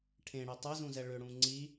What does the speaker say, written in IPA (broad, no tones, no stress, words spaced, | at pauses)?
ʈʰẽɽe tˤezũzɛ ɭʏɽũ ŋ͡ǀi